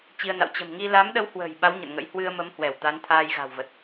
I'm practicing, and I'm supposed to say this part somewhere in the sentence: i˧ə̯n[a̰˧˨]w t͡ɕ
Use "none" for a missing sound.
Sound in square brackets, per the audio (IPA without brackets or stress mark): a̰˧˨